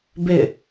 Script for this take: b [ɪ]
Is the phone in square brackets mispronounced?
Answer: no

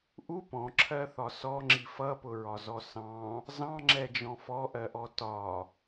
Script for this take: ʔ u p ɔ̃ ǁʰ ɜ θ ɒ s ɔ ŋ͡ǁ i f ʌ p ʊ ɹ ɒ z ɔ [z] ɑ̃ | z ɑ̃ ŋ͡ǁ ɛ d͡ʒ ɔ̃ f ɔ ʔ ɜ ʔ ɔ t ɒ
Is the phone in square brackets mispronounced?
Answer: yes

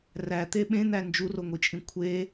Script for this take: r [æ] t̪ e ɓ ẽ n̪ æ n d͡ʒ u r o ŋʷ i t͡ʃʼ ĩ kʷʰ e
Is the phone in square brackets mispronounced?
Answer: no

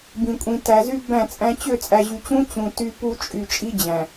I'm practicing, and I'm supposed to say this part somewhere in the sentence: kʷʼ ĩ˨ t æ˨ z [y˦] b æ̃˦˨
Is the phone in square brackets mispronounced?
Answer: no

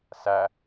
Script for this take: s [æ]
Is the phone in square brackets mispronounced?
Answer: no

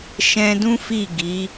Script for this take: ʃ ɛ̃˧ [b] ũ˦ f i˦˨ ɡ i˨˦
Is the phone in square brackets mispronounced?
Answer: yes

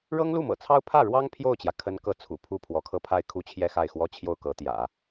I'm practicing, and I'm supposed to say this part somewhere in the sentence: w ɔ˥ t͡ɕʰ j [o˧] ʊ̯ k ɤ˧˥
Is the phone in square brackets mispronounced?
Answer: yes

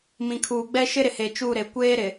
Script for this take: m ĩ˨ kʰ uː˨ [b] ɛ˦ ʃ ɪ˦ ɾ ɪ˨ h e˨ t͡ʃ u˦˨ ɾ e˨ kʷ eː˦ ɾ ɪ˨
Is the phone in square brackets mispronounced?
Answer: yes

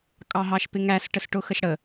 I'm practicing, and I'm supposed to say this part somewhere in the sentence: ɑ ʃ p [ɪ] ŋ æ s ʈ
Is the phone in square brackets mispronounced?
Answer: no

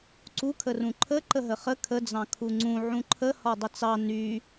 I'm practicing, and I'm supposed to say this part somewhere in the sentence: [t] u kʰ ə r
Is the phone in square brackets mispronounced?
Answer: yes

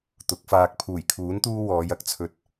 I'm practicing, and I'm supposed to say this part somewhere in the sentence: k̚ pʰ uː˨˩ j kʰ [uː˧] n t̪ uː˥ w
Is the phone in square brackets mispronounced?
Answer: yes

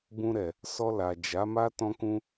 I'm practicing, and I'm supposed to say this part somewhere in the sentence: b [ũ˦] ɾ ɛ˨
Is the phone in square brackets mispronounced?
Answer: yes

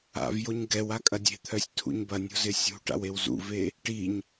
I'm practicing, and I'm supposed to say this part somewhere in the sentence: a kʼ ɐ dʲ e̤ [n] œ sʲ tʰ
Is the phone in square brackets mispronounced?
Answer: yes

